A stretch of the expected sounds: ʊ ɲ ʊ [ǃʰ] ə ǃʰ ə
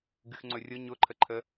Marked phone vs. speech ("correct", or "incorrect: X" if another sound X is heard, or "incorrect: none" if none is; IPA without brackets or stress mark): correct